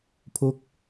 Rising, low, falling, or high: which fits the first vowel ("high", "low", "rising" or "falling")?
falling